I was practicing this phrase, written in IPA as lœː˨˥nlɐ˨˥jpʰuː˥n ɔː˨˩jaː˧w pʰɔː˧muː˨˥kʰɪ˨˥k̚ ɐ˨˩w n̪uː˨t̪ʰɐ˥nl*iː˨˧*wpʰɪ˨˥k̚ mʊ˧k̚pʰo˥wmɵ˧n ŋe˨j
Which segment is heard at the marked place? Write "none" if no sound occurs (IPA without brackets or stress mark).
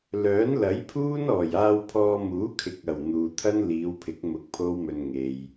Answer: iː˨˧